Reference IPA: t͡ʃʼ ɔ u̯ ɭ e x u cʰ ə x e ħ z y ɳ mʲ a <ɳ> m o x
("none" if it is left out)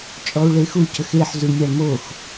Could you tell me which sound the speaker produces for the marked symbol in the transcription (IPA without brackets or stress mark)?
ɳ